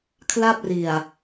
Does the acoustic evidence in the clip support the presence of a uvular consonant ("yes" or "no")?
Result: no